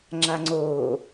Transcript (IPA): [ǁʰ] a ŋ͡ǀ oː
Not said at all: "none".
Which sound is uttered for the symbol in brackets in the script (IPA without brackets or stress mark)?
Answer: ŋ͡ǁ